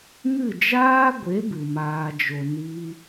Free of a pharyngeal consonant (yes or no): yes